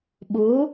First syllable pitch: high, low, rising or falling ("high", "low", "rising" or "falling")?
rising